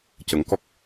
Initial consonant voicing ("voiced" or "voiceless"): voiceless